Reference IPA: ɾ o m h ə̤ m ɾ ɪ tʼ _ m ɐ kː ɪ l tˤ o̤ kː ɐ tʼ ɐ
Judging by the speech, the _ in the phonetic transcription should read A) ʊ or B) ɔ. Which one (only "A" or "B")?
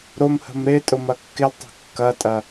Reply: A